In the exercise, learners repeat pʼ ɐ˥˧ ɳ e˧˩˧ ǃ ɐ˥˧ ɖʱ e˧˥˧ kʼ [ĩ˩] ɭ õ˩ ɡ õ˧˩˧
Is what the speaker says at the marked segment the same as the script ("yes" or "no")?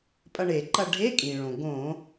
yes